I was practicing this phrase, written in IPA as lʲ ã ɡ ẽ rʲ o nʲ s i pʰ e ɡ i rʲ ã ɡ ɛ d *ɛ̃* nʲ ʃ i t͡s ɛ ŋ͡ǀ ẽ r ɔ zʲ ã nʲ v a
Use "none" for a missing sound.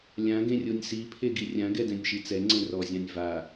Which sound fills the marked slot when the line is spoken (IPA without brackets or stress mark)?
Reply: ɛ̃